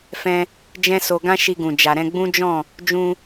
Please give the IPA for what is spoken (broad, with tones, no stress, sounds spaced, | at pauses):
f ɛ̃˧ | d͡ʒ ɛ̃˦ s o˧ ɡ ã˦ ʃ i˧ ɡ ũ˨ d͡ʒ a˨ ɾ ɛ̃˧ ɡ͡b ũ˦ d͡ʒ ɔ̃˦˨ | d͡ʒ ũ˧